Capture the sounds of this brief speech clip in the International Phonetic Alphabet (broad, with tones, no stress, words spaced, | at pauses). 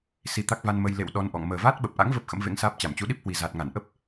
si˧ t̪a˦˥k̚va˧nmə˧j lḛ˧˨w ɗɔ˧nʔɔ̰˧˨ŋ məː˨˩vaː˦˥t̚ɓə˨˩p̚ʔa̰˧˥ŋ və˦˥p̚ xə̰˧˥mvḛ˧˥ŋsaː˦˥p̚ t͡ɕa˧˩mt͡ɕu˨˦ɗi˦˥p̚hwi˨˩ za˨˩t̚ŋa˧˩nʔə˦˥p̚